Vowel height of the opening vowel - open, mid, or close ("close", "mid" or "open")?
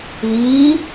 close